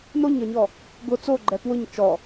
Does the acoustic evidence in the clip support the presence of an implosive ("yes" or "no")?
no